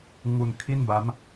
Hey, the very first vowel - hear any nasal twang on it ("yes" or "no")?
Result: no